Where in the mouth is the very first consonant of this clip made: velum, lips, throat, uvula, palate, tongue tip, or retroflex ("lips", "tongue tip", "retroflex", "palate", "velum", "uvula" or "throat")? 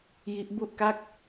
palate